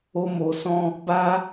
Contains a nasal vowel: yes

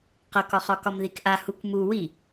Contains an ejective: no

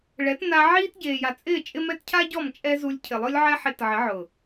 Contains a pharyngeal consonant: yes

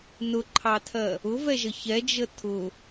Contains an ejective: no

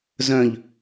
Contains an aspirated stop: no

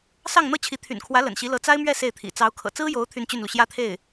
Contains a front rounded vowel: yes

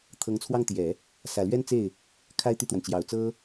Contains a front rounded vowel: yes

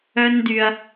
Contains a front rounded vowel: yes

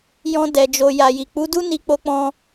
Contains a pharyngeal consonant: no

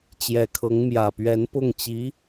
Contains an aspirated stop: yes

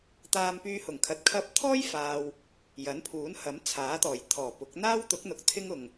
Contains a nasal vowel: no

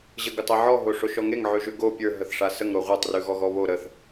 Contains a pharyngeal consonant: yes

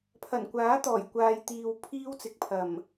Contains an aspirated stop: yes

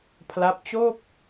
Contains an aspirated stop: yes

